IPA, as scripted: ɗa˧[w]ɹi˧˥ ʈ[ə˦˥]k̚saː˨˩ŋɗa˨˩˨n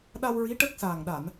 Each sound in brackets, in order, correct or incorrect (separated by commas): correct, correct